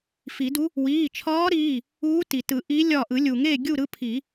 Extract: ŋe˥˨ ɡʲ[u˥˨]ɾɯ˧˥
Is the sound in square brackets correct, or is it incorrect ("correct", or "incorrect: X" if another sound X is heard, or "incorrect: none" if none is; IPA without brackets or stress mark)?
correct